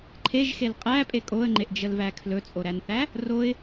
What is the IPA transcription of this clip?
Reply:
ǃʰeʒxel qʼæpʼe kʼoə̯ŋ͡ǃeʔd͡ʒəlvæ kʰlɵt͡sʼoɾænθæ | roɪ̯

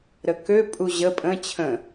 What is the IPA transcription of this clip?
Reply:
ɾəkø pʼuʑə pʼə̃ t͡ɕʰə̃

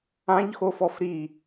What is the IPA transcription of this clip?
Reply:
ãʎxofɔf ɾi

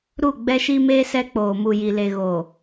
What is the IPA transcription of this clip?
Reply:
ɾu˦˨ɡ͡bɛ˦ʃi˦meː˦ sɛ˦k͡poː˨mu˨ ji˨le˨ ɣo˨

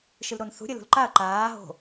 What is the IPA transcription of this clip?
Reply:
ʃɨlɾonθṳ ɾʲəlṳlǃaɐ̯ ǃaː ɦo̤

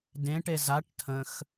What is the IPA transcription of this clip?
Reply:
dẽʈe zaʈ tʰə̃x

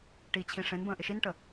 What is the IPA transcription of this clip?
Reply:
ʈit͡ɕʰĩ ʂẽnbə̃ː ʔɪʃinʈə

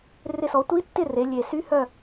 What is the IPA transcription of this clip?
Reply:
rɪ˦˨sɔ˩˥ tʷi˧˥tːɪ˦˨ re˩˧lʲe˨˩ sy˧˥hœ˦˨

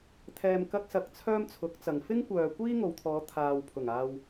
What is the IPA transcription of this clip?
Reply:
t̪ʰɛː˧mkɐ˥k̚sɐ˧k̚ t͡sʰœː˥mt͡sʰʊ˨˥k̚t͡sɐ˨ŋ fɪ˥ŋkʷœː˨ kʷiː˥ŋo˨wt̪ʰɔː˨˧ t̪ʰaː˨wpʰʊ˨˩ŋaː˧w

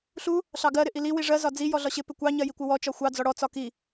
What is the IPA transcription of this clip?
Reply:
ɬu | ɬɑɡɜ ɾɪʔili wiʐɜ zɒd͡zi jɔɮɒɕɪ pɪkʷɑ ɲɜjikʷɪwɔ t͡ʃɒxʷɑ d͡zɔɽɔ t͡sɒki

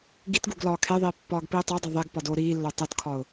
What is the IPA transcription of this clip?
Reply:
ɡitɡuɡ lɒːkʰeðˤiː pːɒːɡpiːtˤodˤe ðˤeɡ pɒdoːɾiːlːo tˤotkʰɒʊ̯

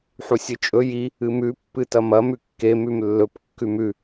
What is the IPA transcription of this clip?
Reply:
ħusʲɨt͡ʃʼɵ ji | ɨmʉ pːɨtɐmɐ mʉkːe mʉmlːɵp kːʉmʉ

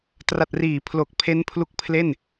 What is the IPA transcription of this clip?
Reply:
tra˨˩t̚riː˩˦pʰlo˨˩k̚ pʰe˦˥npʰlu˦˥k̚pʰle˥˩n

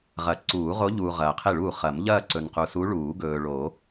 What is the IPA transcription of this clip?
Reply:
ʁɐ˨˩˦ ǀuː˨˩˦ʁo˧˥ʎuː˨ ʁɐː˨qʰe˥˩ɭuː˥˩ χɐ˨˩˦mʎɐː˥˧ ǀɵ˨n qu˨su˧˥ ɭuː˨˩˦ɡɵː˨ɭo˨˩˦

